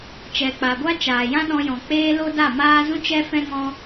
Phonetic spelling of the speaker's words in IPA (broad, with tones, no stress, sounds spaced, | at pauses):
t͡ʃ ɛ˨ k͡p a˨ ɡʷ a˦ t͡ʃ aː˨ j ã˦ ɗ ɔ̃˧ j ɔ̃˨ k͡p eː˦ l o˦ d a˦˨ m aː˦ z ũ˦ t͡ʃ ɛ˦ f ɛ̃˦ ŋ ɔ̃˦